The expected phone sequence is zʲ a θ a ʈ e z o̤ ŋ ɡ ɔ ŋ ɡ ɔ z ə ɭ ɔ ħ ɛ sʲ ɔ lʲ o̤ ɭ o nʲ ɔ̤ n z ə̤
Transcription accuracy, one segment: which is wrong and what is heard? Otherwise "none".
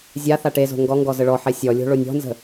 none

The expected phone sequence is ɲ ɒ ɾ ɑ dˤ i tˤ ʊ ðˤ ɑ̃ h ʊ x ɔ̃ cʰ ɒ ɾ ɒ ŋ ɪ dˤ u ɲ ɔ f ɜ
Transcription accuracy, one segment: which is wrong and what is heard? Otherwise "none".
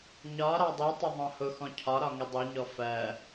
none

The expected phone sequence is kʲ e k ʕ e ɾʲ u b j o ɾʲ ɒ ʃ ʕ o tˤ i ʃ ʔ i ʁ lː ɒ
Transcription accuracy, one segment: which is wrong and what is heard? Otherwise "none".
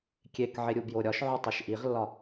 none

